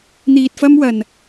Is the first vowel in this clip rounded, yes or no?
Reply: no